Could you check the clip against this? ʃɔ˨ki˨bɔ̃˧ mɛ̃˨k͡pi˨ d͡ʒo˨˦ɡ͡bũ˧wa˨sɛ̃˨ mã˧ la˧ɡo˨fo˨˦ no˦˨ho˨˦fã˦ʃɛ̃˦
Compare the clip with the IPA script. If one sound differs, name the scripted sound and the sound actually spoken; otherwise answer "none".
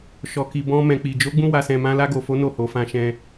none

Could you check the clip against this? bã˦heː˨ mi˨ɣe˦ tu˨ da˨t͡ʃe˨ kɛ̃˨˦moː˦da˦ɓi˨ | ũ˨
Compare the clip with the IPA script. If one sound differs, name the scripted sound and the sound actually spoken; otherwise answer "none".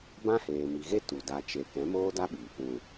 none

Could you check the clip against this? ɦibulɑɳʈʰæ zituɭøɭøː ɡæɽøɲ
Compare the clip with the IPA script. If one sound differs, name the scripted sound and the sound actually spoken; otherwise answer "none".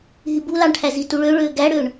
ɲ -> ɳ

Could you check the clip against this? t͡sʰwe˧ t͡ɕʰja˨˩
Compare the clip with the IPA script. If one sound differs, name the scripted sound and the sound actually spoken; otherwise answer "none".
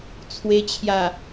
none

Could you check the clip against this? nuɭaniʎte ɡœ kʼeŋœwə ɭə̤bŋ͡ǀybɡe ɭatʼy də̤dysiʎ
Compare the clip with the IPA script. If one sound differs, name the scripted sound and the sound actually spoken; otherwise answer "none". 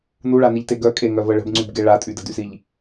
w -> v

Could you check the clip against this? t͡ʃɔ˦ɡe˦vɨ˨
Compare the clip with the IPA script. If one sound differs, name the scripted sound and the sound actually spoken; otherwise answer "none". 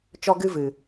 e˦ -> ɨ˦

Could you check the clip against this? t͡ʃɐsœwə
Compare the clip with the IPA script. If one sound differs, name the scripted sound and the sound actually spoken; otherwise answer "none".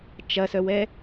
ə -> ɛ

